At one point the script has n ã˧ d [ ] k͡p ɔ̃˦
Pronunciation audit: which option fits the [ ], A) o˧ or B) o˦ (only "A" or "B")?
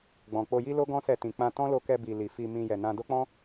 B